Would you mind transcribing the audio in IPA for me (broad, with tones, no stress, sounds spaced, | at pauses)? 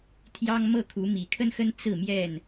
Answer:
t̪ʰ j ɑ˦ ŋ m ɤ˥˨ kʰ u˨˦ m i˨˩ kʰ ə˦ n x ə˦ n t͡s ɹ̩˥˨ m j ɛ˥˨ n